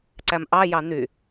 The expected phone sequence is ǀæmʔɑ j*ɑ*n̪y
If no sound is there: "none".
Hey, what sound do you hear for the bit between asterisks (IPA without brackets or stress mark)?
ɑ